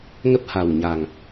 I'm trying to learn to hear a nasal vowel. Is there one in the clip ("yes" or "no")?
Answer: no